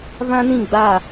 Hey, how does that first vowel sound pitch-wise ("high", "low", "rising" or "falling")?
high